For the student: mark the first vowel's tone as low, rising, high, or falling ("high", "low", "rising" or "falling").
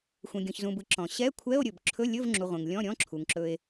low